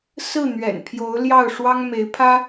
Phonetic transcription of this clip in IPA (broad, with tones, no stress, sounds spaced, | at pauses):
s ɹ̩˥˩ n̪ ɥ ɛ̰˨˩ n pʰ j o˧˥ ʊ̯ l j ɑ˥˩ ʊ̯ ʂ w ɑ˥ ŋ m e˧˥ ɪ̯ pʰ ä˥